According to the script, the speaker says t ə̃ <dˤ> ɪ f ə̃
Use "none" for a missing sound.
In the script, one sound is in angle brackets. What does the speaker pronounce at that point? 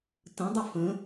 dˤ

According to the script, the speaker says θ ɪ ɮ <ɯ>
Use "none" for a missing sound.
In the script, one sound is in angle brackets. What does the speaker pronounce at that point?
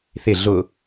ʊ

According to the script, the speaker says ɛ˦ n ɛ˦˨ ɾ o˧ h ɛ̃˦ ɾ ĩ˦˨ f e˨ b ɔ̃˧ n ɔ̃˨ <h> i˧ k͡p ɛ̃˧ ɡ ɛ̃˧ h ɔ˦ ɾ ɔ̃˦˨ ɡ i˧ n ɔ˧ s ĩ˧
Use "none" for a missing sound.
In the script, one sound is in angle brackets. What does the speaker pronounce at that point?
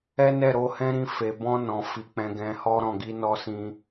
f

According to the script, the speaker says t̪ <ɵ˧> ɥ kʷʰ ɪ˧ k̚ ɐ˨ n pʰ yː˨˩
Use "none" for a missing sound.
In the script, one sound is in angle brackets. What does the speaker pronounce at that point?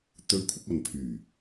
ɵ˧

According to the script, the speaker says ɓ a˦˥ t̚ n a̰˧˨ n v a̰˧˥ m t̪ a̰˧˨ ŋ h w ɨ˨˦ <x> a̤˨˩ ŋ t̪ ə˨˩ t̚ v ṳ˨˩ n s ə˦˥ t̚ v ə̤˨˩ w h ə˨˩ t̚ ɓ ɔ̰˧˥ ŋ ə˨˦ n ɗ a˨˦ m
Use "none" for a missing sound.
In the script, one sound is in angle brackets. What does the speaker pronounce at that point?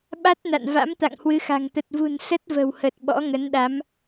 x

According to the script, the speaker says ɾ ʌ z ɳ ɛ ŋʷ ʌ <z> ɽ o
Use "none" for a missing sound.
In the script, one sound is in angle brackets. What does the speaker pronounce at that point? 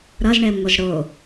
z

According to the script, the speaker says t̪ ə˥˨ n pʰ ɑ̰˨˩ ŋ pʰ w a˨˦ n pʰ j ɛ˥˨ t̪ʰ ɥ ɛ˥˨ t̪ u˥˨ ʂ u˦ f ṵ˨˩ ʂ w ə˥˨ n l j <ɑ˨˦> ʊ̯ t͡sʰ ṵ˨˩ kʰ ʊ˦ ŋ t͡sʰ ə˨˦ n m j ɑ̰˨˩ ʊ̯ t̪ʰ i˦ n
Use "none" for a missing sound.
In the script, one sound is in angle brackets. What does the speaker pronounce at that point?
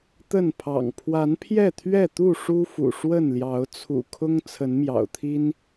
ɑ˨˦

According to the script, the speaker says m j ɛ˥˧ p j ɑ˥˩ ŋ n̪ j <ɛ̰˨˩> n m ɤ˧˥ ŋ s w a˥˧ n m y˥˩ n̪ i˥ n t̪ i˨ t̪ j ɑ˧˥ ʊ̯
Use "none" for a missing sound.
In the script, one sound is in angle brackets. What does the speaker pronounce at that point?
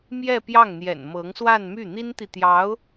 ɛ̰˨˩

